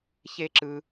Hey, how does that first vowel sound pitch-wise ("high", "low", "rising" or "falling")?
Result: high